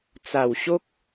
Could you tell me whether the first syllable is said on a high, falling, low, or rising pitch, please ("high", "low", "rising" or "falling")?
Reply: low